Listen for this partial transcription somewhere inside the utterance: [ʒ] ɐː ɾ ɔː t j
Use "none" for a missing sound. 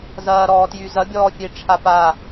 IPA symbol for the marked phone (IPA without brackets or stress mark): z